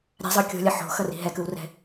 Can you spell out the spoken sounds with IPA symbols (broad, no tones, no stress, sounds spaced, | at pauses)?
ɾʲ a̤ zˤ ɯ kʲ o̤ lʲ ʌ ħ o̤ x ʌ r i̤ ɦ ɛ k ɯ w r ɛ̤